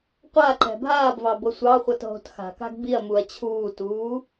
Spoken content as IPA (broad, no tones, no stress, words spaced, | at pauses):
qʷaǃɛ̤ bʱaːbvɑ bɤsʷɑχʷɤt ɦo̤txa̤ka̤ɡ biɐ̯muɐ̯ t͡ɕʰuːtuː